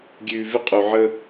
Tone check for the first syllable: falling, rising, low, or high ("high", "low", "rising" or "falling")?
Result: low